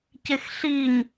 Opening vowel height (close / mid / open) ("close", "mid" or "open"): close